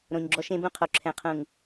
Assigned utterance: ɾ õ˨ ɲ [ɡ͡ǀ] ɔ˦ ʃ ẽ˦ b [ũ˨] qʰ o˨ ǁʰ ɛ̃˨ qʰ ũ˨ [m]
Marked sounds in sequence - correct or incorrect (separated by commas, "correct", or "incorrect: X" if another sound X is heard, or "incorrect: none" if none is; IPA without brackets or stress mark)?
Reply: incorrect: ɡ͡ǁ, incorrect: ũ˦, incorrect: ŋ